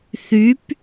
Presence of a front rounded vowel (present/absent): present